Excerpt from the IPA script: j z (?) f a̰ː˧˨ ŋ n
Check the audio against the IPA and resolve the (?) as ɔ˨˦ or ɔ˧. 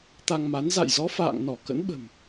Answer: ɔ˨˦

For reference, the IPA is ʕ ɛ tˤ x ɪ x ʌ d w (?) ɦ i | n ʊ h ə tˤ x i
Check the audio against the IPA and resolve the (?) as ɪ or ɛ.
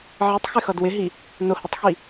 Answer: ɪ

